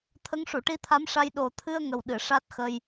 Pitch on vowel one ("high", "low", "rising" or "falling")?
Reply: rising